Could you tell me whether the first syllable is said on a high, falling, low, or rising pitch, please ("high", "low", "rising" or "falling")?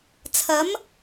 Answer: rising